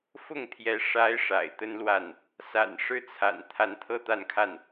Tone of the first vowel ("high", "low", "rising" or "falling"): falling